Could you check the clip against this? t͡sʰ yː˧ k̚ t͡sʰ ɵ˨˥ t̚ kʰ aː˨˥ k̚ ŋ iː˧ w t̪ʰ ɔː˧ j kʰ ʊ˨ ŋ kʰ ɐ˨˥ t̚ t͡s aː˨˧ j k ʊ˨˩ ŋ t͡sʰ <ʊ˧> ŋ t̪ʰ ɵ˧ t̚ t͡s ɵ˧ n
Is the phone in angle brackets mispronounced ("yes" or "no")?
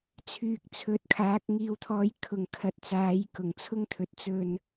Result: yes